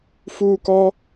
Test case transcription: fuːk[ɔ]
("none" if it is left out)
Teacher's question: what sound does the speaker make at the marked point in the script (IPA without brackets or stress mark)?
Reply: ɔ